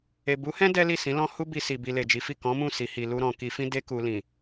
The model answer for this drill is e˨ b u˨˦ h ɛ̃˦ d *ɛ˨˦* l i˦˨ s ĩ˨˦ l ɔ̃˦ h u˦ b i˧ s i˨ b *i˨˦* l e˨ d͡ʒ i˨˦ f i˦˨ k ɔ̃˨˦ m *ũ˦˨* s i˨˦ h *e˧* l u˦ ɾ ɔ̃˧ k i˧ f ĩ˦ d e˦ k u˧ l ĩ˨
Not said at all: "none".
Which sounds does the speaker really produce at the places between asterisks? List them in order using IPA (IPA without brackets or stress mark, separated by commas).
ɛ˦, i˧, ũ˦˨, i˧